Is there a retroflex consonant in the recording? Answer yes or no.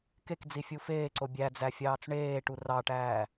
yes